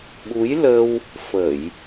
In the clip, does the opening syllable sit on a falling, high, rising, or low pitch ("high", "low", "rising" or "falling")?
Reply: rising